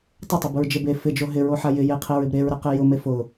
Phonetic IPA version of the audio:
tˤ ɪ tˤ ʊ b ʊ ɹ d͡ʒ e b e f ɪ d͡ʒ o ɦ ɪ ɹ o ħ a j ɪ j e qʰ e ɹ ɪ b ɾ e ɹ ɾ ɛ q e j ʊ m e f ʊ

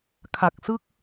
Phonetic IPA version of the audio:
kʰ a˨˩ k̚ s ɯ˥˩ k̚

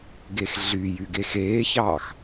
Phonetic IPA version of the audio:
ɡ e x ɮ y j y ɡ e x eː ç ɑː x

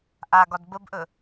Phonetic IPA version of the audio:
ʔ a ɡ ɒ d b ə b ʔ ɵ

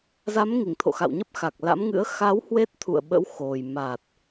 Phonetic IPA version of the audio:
z a˨˦ m ŋ i˧˩ ŋ t̪ʰ o̰˧˨ x a̰˧˨ w ɲ ə˦˥ p̚ x a˨˩ k̚ l a̰˧˥ m ŋ ɨ̰˧˥ ə̯ x a˨˦ w h w e˦˥ t̚ t̪ʰ ṵ˧˨ ə̯ ɓ ə̰˧˥ w x o˨˩ j m a˨˩ t̚

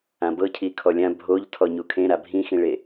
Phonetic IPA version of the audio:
ã b ɤ cʰ i kʰ ɔ lʲ ã bʱ o ʎ tʰ ɔ ɲ u kʰ ẽ ɾ a bʱ ĩ x ĩ ɭ e

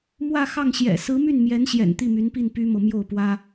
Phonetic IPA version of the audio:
m w ä˥˧ x ɑ˥˩ ŋ ɕ j ɛ̰˨˩ s ɹ̩˧˥ m y˥˩ n m j ɛ˧˥ n ɕ j ɛ̰˨˩ n t̪ i˥˩ m y˧˥ n p i˥˩ n p y˥ m ɤ˨ m j o˥˩ ʊ̯ p w ä˥

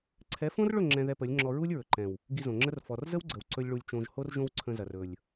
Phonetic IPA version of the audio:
ǀʰ ɛ˨˦ f õ˦ r ɭ ɵ˦˨ ŋ͡ǁ ɛ̃˧ ð ɛ˧ p ə˨˦ lʲ ŋ͡ǁ ɔ˧ ɹ u˦ lʲ ɹ ɵ˨ ǃ ɛ̃˨ w | ɡ i˧ z õ˨ ŋ͡ǁ ə˦ r f ɔ˨ r z ə˦ w ɡ͡ǀ ə˨ w ǀ ɵ˦ lʲ ɭ u˧ lʲ t͡ʃ õ˧ ʒ h o˦ r ʒ õ˦ w ǀʰ ə̃˧ z ɐ˨ r ɵ˨ lʲ

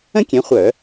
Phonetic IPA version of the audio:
ə̃˥ kʲ ɛ̃˨˦ χʷ œ˧˩˧

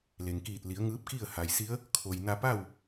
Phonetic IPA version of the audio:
l e˩ ŋ k iː˧˩ t̚ l i˩˧ ə̯ ŋ ɯː˧˥ p̚ k i˥˨ ə̯ h a˩ j s i˧˥ ə̯ | kʰ o˩ j n a˧ p a˥˨ w

